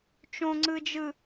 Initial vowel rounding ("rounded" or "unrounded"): rounded